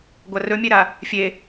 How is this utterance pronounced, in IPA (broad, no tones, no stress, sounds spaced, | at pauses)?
ɡʷ a r ɵ mʲ e ɾ a | fʲ e